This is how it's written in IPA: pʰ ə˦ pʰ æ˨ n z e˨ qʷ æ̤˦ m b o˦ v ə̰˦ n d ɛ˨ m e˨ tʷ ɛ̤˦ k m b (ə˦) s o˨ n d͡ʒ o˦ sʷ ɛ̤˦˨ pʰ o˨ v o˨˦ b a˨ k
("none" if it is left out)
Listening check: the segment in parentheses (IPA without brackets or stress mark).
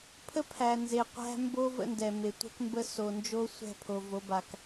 ə˦